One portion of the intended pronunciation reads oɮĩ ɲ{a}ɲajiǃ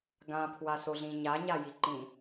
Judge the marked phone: correct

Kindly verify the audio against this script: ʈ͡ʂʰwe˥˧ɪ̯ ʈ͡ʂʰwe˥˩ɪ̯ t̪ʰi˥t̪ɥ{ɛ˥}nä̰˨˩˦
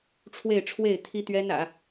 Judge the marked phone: correct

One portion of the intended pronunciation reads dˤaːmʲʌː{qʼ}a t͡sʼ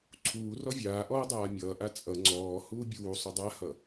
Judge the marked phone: incorrect: ʔ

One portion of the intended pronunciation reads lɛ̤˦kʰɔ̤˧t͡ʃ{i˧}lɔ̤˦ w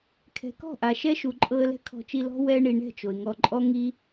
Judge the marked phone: correct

